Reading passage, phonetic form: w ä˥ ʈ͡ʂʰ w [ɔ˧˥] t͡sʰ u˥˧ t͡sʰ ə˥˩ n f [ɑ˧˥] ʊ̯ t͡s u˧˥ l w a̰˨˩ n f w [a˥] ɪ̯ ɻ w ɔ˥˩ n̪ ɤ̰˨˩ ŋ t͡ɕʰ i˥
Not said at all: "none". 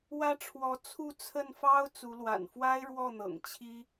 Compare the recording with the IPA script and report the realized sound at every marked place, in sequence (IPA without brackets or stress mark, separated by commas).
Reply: ɔ˧˥, ɑ˥, a˥